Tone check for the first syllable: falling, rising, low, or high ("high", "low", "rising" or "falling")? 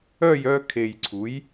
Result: falling